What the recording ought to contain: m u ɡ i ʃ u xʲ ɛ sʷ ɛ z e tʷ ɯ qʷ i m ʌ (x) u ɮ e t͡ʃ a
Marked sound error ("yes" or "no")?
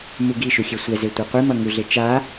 yes